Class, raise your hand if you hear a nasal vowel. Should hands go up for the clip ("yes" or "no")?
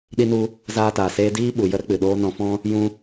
yes